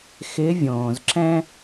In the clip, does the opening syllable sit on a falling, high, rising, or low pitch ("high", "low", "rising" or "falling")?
rising